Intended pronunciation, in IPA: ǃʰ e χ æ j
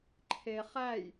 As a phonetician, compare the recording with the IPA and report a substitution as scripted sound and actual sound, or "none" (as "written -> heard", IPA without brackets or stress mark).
none